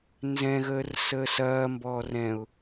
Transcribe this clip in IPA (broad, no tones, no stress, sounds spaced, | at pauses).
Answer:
n z ɛ̃ ɣ əː r s əː s ɐː m b ɔː r ɛ̃ ʊ̯